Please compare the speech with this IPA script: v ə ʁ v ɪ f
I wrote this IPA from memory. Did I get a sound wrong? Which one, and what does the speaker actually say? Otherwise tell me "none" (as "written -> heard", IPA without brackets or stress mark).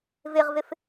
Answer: ə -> ɪ